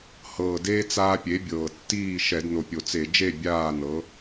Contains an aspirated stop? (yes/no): no